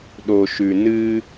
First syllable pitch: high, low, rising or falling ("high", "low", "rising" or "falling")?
low